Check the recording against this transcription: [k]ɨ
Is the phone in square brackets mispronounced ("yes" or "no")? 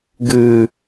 yes